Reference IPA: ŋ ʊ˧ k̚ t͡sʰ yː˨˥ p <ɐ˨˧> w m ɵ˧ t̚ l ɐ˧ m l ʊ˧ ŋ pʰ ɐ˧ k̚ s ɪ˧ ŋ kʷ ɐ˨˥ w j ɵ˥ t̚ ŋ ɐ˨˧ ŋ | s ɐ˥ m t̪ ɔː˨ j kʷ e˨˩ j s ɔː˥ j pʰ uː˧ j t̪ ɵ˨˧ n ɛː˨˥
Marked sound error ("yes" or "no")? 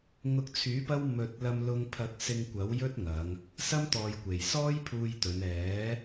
yes